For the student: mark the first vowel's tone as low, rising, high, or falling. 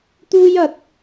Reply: high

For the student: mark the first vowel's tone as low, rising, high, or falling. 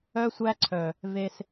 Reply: high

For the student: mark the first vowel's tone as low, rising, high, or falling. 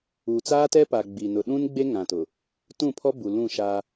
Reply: low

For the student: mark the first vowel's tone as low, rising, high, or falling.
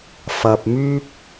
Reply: low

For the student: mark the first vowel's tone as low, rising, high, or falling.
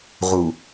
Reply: low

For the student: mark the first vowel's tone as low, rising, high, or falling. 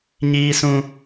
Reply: high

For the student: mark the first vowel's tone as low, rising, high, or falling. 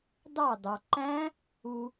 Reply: falling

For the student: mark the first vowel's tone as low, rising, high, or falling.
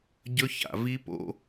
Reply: high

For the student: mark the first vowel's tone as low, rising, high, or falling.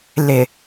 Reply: low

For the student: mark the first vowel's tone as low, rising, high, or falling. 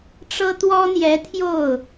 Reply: high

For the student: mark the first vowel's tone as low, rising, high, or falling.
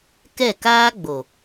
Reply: falling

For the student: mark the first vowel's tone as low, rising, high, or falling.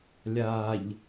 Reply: low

